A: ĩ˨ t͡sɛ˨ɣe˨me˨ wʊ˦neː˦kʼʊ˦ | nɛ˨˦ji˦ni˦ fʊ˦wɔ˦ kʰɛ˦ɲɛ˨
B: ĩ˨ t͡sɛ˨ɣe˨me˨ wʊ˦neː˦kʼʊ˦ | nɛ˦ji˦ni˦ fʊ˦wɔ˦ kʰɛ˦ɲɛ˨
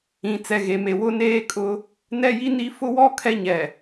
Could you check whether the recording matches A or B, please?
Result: B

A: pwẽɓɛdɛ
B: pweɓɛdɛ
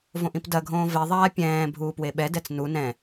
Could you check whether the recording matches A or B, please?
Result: B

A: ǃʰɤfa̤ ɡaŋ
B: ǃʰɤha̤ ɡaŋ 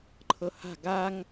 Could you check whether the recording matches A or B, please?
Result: B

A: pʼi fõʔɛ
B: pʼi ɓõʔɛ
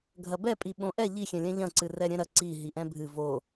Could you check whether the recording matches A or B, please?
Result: B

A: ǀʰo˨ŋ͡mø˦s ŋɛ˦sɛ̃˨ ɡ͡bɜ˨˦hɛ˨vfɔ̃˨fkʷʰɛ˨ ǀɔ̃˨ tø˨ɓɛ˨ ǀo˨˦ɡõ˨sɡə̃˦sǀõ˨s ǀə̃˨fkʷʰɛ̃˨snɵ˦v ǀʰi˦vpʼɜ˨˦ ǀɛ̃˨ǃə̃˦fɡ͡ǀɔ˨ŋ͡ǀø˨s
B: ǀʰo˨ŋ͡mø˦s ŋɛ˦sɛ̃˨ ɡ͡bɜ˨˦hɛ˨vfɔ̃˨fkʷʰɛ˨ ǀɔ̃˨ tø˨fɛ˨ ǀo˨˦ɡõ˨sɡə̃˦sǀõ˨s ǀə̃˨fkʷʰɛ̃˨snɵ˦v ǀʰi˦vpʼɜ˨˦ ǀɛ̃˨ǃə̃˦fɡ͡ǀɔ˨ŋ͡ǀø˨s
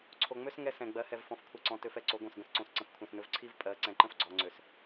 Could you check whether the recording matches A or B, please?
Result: B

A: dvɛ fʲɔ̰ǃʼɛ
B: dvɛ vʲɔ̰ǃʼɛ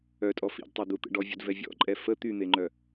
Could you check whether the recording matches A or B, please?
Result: B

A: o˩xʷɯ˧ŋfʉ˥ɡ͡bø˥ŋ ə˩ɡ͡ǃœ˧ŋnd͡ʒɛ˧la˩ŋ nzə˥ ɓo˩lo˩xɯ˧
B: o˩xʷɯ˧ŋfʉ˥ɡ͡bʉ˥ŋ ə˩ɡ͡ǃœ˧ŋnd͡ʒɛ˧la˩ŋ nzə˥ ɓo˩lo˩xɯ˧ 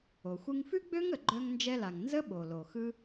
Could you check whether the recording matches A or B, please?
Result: A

